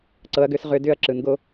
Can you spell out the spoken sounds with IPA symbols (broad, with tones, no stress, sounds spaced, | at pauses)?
ǀ ɤ˩˧ ɐ̯ ɡ ʏ˧˩˧ s ʁ ʏ˧˩˧ d ʏ˦˥ ɐ̯ ǁ ɯ˩˧ n ɡ o˦˥